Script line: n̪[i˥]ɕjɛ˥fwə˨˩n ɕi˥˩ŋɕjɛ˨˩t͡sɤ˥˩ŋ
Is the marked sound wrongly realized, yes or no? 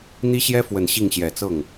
no